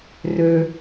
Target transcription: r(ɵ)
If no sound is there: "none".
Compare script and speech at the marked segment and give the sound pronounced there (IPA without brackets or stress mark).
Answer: ɵ